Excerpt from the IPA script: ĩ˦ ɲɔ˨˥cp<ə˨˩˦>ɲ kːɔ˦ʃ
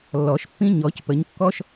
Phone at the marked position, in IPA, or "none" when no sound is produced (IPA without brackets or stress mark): ə˨˥